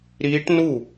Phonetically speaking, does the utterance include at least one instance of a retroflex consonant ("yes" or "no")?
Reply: yes